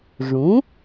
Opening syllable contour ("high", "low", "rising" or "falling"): rising